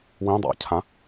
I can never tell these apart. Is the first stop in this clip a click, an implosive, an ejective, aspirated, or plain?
plain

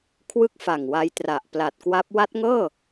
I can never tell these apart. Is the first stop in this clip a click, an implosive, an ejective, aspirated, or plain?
aspirated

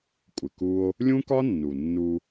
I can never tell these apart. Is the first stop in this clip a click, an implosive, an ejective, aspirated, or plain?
ejective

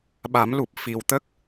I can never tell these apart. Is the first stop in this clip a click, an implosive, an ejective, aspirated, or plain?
implosive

